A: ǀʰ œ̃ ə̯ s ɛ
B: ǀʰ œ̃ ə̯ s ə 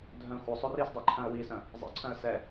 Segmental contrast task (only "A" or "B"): A